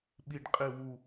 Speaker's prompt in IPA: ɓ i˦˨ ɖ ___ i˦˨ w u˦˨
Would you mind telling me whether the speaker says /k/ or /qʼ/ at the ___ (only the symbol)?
qʼ